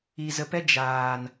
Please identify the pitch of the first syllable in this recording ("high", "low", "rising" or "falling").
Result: low